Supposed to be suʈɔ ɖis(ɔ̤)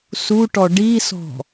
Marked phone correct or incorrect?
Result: correct